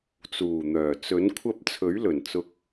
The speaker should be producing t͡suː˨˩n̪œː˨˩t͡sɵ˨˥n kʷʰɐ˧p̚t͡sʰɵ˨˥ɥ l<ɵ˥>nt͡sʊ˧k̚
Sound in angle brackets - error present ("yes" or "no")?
yes